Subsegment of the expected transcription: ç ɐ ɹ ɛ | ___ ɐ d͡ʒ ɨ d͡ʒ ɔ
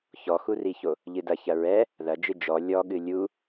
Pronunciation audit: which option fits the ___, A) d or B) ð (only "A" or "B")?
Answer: B